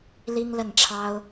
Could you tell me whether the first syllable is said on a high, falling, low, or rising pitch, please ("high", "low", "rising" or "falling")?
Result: high